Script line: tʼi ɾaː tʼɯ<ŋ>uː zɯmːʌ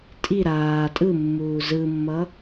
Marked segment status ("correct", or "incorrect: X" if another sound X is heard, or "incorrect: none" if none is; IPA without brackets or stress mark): incorrect: mː